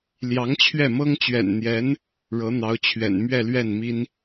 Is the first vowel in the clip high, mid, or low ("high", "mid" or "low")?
low